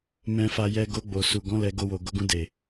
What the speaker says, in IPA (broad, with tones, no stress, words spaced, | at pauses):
mɛ̃˧fa˧jɛ˧ ɡo˧ɡ͡bo˨su˨ ɡɔ̃˨˦ lɛ˧ ɡo˧wo˨ ɡo˨˦ɡũ˧de˨